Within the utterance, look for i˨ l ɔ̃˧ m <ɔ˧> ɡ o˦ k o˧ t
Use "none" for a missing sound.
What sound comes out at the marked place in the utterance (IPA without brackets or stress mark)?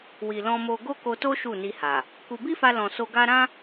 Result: o˧